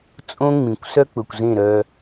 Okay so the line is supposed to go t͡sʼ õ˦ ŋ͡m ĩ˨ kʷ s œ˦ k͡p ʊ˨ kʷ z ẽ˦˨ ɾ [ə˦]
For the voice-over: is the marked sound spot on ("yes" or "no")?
no